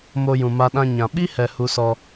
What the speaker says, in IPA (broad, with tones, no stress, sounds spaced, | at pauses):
m o˧ j ũ˨ m a˧ ɗ ã˧ ɲ ã˨ ɓ i˦ h ɛ˨ h u˧ s ɔ˧